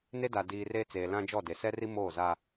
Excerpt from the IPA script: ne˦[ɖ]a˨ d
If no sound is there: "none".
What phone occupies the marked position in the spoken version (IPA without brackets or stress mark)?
d